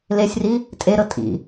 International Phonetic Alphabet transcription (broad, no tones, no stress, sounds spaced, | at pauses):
l e sʲ r i | tʼ e ɾ ɤ tʼ ḭ